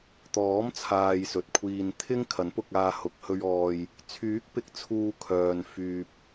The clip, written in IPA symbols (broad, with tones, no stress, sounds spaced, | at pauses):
t̪ ɔː˨˥ m t͡sʰ aː˨ j s ɵ˨ t̚ kʷʰ iː˧ n t̪ʰ ɪ˥ ŋ kʰ ɐ˨˥ n p ʊ˧ k̚ aː˧ h ʊ˨ k̚ h ɵ˧ ɥ ɔː˧ j | t͡sʰ yː˨˥ k̚ p ɪ˨˥ k̚ t͡sʰ uː˧ kʰ œː˨ n f yː˨ p̚